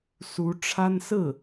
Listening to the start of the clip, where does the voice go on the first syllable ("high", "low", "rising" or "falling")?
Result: rising